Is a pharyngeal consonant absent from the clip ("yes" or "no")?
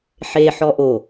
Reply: no